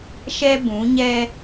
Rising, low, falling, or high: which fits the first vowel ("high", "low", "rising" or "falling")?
high